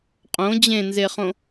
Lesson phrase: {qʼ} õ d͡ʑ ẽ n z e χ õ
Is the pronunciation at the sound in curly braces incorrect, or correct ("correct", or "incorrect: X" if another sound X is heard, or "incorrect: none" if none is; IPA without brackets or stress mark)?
correct